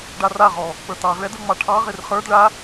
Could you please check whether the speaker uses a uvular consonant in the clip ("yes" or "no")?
yes